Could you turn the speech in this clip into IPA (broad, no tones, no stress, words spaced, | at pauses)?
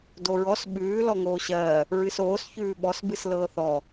doɹɔs ɓʉː lɔŋoːɕɜː | ɹɨsoːs çʉːɓɔs bɨslɤːθɔ